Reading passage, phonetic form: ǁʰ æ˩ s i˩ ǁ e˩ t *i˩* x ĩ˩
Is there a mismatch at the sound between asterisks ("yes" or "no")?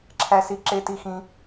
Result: no